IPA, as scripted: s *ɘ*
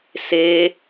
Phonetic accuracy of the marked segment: incorrect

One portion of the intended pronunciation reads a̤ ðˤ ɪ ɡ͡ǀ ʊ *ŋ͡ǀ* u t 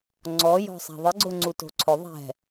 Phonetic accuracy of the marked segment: correct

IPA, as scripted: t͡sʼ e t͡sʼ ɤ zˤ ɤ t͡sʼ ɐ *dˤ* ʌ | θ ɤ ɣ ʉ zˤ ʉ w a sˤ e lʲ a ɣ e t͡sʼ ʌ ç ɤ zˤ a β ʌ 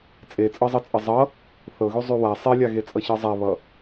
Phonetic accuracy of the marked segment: incorrect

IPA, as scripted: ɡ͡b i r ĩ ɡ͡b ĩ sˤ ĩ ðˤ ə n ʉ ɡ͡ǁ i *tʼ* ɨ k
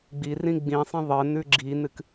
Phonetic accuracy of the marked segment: incorrect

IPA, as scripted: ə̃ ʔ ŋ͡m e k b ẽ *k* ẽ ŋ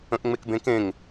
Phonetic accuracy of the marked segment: correct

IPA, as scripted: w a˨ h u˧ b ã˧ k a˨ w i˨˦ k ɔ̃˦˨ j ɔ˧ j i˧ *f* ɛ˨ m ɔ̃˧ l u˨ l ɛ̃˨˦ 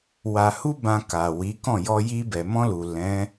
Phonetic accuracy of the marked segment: incorrect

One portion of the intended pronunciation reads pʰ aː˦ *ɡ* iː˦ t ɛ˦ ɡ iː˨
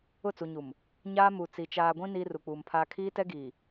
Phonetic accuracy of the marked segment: incorrect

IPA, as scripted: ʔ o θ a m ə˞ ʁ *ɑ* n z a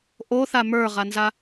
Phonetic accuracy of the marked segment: incorrect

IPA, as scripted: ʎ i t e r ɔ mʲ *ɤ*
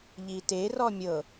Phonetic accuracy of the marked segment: correct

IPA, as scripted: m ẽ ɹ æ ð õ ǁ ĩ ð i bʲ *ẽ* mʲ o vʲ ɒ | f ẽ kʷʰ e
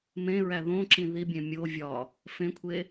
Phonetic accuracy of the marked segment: correct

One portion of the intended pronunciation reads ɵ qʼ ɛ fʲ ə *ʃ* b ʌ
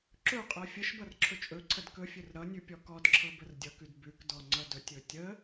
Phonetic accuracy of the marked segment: correct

